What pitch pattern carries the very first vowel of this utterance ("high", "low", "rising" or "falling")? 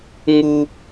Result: high